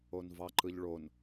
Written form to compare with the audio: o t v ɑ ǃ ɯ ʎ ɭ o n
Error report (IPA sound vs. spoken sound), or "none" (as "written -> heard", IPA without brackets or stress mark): t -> n